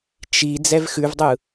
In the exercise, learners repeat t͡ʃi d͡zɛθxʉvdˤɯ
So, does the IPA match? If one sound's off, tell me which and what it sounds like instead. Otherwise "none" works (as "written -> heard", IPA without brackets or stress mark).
θ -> v